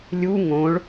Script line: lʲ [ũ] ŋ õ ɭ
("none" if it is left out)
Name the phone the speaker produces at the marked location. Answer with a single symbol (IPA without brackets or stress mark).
u